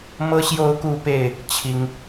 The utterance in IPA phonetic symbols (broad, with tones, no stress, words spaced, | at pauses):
mɤ˦ɕjo˥˨ʊ̯ku˥˨pe˥˨ɪ̯ | t͡ɕʰi˦ŋ